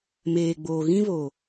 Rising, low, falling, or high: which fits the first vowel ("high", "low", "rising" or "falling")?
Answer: low